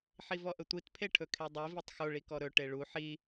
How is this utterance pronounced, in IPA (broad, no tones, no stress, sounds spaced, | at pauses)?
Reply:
ħ i v ɔ ʔ ə tʷ i t pʰ e ʈʰ ɵ kʰ e dˤ i v i tˤ x o ɭ i k ɔ ɾ ɵ ʈ e ɭ u ħ i